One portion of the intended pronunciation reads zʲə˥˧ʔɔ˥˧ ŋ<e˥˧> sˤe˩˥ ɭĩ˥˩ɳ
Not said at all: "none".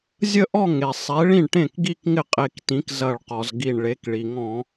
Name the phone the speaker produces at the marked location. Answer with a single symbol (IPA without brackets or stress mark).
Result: e˩